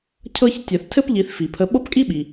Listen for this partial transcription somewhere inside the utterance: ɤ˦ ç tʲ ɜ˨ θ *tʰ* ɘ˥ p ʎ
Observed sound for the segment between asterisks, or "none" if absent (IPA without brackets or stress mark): tʰ